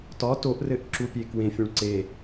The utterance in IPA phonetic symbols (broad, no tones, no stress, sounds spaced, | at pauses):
t ɒ t o ʔ r ɘ ʔ ǁ u pʲ e k w ẽ fʲ ũ ɭ ǀ e